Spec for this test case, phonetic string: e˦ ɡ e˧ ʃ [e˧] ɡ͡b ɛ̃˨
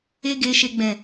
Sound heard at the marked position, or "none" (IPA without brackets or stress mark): e˧